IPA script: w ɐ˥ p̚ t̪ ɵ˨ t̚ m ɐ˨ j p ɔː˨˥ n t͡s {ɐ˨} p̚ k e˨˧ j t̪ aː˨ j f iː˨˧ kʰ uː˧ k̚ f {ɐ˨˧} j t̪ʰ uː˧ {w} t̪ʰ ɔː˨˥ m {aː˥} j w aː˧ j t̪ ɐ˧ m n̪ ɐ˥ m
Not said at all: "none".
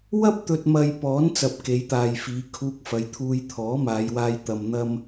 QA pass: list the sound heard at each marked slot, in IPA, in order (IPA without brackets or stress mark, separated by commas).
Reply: ɐ˨, ɐ˨˧, j, aː˨˧